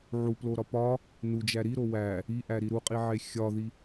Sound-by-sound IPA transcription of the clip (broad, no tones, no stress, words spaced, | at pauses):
ʕuploɾɒ pɒ | nud͡ʒæ ɾiɾo wæ | iʔæɾi ɾuqʼiʕe xʲɒði